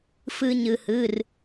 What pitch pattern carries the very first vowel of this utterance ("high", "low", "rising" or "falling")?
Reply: high